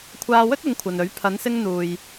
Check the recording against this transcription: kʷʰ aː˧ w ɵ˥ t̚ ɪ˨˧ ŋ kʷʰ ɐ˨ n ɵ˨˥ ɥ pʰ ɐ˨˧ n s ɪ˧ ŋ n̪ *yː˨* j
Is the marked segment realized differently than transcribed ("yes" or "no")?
yes